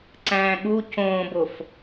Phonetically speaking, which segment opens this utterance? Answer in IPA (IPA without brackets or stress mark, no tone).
ǀ